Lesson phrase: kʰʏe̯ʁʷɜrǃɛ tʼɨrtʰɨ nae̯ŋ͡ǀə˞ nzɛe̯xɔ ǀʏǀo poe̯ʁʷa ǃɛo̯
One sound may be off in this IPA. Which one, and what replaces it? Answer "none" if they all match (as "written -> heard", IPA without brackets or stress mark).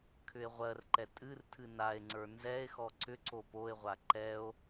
none